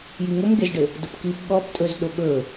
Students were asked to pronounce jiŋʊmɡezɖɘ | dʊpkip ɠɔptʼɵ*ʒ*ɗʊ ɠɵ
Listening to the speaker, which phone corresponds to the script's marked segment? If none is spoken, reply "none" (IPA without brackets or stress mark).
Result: z